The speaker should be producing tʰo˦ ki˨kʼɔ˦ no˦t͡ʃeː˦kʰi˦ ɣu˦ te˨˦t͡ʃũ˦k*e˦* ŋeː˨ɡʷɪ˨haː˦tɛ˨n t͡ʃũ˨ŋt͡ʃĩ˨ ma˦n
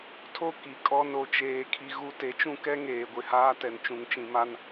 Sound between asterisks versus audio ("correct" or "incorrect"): incorrect